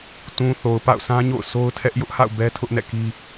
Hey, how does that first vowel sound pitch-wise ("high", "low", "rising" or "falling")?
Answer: low